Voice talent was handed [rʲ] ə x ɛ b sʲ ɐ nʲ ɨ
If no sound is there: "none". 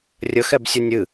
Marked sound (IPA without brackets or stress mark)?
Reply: rʲ